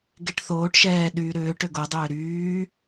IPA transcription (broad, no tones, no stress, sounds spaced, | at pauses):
ɡ e ʈ θ oː ʈ ʃ ɛː ɗ yː ɾ ʏː ʈ ʏ ɡ o dˤ ʏː ɾ yː